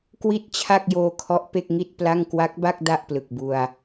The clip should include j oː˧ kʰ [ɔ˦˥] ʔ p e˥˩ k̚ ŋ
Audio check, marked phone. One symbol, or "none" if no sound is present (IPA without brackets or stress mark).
ɔ˦˥